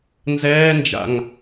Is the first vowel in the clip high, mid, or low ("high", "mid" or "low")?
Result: mid